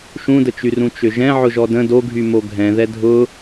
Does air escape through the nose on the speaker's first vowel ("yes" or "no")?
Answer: yes